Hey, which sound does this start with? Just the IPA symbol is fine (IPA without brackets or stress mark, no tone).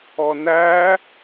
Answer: ɔ